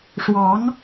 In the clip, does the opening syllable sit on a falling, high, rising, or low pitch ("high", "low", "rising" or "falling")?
rising